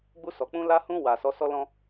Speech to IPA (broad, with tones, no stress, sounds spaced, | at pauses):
ɡ͡b u˧ s ɔ˨ k͡p ũ˧ l a˧ h ũ˧ w a˨ s ɔ˨˦ s ɔ˦ l ɔ̃˦